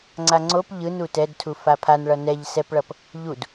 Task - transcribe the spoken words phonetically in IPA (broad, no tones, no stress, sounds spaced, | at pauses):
ŋ͡ǀ a ŋ͡ǀ o p ʎ ɯ n u t ɛ d tʰ u f a pʰ a n ɭ ʌ n ɛ ʎ s ɛ p ɭ ʌ p | ʎ u d